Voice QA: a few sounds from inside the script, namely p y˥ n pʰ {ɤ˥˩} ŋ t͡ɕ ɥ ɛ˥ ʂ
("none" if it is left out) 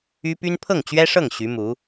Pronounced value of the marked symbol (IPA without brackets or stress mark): ɤ˥˩